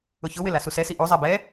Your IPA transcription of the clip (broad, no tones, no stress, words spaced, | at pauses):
ʊçʊwɪ lasusɛsi ʔuzˤɛ bɛ